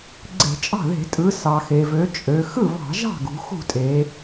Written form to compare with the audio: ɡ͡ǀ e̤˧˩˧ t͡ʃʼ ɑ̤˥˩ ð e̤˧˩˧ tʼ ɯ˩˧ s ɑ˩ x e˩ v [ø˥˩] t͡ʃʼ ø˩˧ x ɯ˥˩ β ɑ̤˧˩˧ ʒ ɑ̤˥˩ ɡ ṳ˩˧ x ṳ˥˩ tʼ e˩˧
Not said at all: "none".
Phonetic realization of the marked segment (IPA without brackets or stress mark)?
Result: ø˩˧